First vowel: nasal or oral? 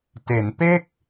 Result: oral